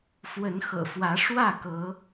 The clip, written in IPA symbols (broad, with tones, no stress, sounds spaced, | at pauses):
f w ə˨˦ n x ɤ̰˨˩ f w ä˨˦ ʂ w ä˥˨ k ɤ˨˦